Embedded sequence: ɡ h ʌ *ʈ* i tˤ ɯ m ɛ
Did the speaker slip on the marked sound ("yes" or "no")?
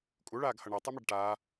yes